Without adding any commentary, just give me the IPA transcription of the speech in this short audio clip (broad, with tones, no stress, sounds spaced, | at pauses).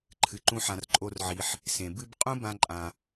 ǃʰ ɨ˩ ǃ ũ˦ ħ ã˨ r ǃʼ o˦ r ʕ i˨ ħ | s ẽ˩ b ɨ˦ b qʼ ũ˥ b ã˥ ǃʼ ã˨